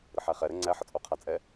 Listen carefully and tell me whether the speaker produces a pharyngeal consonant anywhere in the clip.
yes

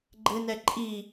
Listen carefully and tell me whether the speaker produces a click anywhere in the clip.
yes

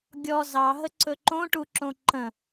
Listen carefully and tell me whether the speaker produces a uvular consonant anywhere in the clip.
no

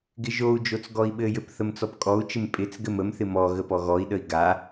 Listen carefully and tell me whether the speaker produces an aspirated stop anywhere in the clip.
no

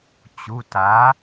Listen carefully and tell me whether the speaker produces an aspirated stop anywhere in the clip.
no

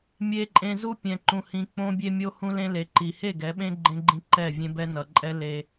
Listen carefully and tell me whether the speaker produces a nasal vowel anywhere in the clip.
yes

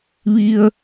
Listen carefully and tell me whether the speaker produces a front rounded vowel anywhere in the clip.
no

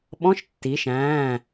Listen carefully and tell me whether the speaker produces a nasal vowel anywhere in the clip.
yes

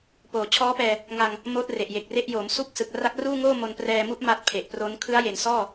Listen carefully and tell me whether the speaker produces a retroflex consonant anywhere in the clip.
no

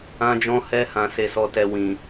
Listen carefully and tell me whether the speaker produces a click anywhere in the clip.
no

